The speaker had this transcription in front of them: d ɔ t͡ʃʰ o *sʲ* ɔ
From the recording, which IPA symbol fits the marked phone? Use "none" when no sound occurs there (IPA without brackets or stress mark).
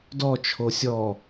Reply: sʲ